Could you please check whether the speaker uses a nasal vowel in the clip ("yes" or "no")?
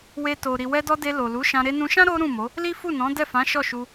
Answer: yes